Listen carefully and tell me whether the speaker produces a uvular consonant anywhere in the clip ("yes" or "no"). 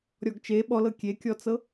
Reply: no